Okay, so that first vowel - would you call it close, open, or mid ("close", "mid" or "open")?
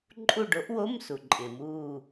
close